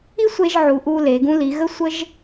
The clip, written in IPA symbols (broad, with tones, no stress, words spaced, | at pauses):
i˥sʷe˧ʒʕu˩˧ʔ u˧le˩˧ ɡũ˧li˩˧ ɣə˥sʷə˥ʒ